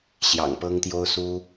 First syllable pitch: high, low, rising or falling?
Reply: low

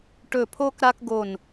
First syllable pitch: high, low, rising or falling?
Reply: falling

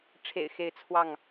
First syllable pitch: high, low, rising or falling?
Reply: low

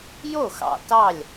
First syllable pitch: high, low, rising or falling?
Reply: falling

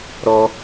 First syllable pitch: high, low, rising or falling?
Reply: high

